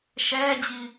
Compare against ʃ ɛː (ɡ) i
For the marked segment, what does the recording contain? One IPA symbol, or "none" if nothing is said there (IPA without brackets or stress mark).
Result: d͡ʑ